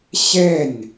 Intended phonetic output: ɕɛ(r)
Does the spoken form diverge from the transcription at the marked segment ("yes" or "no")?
yes